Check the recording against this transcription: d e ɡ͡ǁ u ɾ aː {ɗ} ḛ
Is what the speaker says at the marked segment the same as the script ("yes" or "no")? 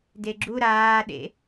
yes